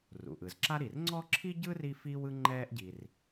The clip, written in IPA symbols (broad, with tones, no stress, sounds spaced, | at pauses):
r ṵ˩ ʔ ɯ˩ z ǁ a˥ ɾ i˩ r ŋ͡ǀ ɔ˥ ǁʰ i˥ ɟ ɯ˥ r i˥ f iː˥ w ɯ˥ ŋ͡ǃ ɛː˥ ʔ ɟ i˩ r